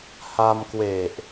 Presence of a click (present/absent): absent